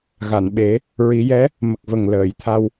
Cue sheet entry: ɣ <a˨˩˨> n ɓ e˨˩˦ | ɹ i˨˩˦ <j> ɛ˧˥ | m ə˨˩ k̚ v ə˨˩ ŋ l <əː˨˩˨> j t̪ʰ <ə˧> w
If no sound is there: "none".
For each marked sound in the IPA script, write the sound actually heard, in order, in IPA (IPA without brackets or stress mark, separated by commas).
a˨˩˨, j, əː˨˩˨, a˧